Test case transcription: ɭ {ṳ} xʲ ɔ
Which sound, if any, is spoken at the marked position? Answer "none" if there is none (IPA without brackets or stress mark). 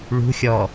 ṳ